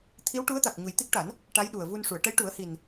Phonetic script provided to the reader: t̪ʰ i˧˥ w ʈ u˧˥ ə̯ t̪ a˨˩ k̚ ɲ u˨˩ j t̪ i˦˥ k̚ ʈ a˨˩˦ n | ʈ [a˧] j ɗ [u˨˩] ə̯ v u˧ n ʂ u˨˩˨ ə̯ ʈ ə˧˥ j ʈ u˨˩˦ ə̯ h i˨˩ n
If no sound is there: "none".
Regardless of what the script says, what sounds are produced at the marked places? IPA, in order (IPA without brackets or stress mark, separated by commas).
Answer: a˧˥, u˨˩